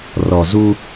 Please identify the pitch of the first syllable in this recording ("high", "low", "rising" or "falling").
low